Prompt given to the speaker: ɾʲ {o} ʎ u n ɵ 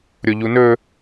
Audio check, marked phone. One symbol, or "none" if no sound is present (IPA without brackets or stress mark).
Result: o